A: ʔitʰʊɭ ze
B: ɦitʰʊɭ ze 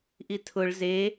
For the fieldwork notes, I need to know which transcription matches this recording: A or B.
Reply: A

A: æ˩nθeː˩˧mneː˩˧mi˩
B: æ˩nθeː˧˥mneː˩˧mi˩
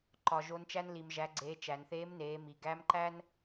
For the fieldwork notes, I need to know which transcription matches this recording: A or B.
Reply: B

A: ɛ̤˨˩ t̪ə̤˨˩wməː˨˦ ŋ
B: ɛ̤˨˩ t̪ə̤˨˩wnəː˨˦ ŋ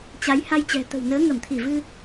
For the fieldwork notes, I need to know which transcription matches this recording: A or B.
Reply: B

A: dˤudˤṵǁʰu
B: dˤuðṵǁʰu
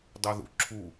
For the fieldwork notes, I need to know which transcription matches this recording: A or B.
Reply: B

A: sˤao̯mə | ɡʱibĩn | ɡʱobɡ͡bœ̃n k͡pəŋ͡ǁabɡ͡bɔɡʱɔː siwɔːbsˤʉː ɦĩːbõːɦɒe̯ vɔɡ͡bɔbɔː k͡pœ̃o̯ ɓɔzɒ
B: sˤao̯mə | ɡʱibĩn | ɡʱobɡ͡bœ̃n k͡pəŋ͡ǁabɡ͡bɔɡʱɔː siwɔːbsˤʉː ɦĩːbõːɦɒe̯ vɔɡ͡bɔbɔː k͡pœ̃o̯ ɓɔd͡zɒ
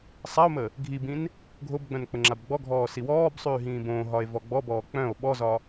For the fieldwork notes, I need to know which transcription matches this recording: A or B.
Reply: A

